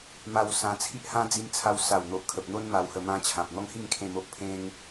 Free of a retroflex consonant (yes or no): yes